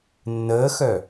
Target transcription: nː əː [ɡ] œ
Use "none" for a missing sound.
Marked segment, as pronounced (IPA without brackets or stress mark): x